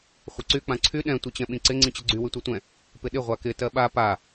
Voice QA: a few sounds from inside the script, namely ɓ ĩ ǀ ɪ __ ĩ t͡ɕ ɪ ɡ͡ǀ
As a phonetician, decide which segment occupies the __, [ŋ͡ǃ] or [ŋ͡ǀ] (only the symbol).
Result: ŋ͡ǀ